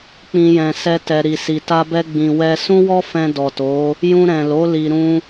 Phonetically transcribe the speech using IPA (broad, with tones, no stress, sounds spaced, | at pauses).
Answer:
k͡p ĩ˧ j ɛ̃˨ s ɛ˧ t ɛ˨ ɾ i˨ s i˨ t a˧ b ɛ˧ ɡ͡b ĩ˨ w ɛ˧ s ũ˦ w ɔ˦ f ɛ̃˧ d ɔ˨ t o˨˦ | j ũ˧ ɾ ɛ̃˨ l o˨˦ l i˧ ɾ ũ˦